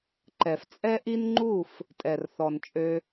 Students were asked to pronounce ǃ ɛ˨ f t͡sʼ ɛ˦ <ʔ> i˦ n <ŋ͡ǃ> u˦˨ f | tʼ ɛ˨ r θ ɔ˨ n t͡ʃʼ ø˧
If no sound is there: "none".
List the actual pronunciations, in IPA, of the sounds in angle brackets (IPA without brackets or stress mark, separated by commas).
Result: ʔ, ŋ͡ǃ